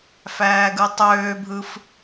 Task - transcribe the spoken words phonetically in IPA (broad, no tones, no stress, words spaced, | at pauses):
fæːɡɯtˤøːbʱɯf